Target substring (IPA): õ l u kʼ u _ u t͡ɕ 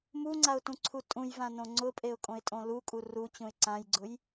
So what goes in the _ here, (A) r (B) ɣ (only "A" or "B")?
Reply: A